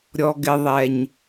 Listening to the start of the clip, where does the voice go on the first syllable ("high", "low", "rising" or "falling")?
low